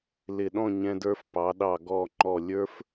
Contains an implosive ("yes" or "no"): yes